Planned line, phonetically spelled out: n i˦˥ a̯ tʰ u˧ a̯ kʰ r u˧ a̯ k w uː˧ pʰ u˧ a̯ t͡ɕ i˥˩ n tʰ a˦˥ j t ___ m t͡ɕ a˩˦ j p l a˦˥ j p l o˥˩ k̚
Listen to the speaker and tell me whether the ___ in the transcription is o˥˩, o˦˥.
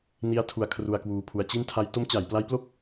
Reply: o˦˥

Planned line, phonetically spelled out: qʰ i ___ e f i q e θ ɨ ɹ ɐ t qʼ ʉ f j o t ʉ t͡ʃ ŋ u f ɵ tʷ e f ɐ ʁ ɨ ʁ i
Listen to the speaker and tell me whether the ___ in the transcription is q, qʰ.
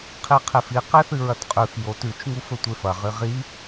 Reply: qʰ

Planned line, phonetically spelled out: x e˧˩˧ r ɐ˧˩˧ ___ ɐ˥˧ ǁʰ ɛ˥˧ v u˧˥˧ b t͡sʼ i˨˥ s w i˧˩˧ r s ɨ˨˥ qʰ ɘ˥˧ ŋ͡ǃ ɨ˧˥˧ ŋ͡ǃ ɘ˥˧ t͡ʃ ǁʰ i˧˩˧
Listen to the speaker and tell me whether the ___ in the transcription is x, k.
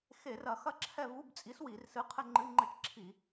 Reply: x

